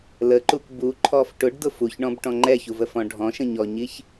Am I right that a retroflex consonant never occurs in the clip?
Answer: no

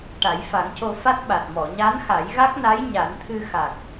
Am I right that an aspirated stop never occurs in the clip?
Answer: no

